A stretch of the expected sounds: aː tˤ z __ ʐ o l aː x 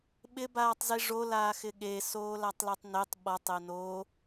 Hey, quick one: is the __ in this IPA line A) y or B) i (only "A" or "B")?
B